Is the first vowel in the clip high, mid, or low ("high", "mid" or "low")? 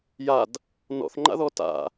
low